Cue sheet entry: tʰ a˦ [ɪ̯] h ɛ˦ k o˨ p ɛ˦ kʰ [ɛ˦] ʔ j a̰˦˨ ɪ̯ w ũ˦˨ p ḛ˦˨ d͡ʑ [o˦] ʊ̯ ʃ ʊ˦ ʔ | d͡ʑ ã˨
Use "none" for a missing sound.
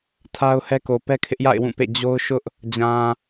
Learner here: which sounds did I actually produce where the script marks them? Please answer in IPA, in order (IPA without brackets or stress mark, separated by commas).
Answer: ʊ̯, ɪ˦, o˦